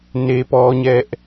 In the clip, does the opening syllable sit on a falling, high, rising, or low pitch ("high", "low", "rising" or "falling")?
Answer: high